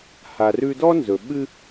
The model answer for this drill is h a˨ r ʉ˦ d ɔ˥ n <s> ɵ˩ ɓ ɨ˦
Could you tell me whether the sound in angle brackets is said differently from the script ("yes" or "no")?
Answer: yes